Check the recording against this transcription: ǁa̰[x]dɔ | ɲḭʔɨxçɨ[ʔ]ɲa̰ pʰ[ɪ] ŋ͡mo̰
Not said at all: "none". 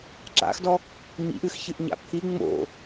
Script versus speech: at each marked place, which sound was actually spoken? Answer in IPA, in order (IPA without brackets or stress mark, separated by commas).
x, ʔ, i